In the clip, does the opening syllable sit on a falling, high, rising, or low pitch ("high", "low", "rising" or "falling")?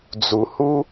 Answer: low